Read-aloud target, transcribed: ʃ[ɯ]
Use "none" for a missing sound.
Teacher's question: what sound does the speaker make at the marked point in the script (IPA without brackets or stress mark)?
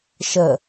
ə